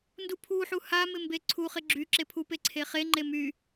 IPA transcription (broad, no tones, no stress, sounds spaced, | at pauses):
n d u pʰ u ħ u h a m ɪ m b e ǀʰ u χ ɪ ɡ͡ǁ y ǁ e pʰ u p e ǀʰ e χ e ŋ͡ǃ e m y